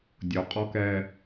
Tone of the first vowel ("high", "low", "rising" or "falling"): low